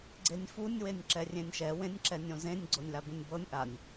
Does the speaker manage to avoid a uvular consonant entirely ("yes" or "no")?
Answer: yes